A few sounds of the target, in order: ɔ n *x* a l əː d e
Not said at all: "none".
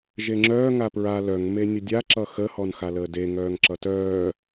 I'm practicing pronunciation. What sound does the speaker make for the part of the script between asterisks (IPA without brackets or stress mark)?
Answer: x